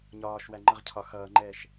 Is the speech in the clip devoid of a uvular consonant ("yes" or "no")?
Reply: no